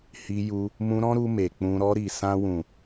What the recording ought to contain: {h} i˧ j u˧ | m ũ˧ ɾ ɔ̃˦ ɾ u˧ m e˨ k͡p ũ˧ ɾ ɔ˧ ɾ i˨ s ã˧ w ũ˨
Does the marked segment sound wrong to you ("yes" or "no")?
no